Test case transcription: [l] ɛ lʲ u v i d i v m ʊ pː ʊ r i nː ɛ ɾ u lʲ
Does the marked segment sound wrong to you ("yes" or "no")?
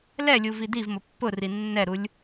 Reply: no